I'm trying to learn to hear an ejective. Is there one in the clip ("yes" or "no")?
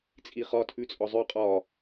yes